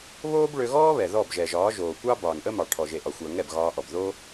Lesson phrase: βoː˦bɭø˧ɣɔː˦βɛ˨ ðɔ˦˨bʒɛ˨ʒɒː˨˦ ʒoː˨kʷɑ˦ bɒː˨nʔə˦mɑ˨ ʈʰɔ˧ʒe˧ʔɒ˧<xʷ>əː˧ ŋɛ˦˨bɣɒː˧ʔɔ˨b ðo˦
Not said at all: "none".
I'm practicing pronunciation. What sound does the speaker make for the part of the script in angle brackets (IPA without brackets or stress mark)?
xʷ